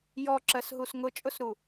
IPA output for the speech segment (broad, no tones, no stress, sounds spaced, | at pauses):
j ɔ ǁ ɜ s ɦ u s ŋ ʊ t͡ʃʼ ʊ s ɾ u